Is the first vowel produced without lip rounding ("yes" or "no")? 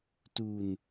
no